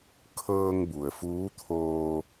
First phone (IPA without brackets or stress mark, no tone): kʰ